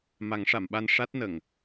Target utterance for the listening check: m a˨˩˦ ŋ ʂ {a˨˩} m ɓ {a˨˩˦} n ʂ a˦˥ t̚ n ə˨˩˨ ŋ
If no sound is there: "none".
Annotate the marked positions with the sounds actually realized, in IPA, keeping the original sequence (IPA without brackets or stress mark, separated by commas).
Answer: a˨˩˨, a˧